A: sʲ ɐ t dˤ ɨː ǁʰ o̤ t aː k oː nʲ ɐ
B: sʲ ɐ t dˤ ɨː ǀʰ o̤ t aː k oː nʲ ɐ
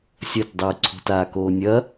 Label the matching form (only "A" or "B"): B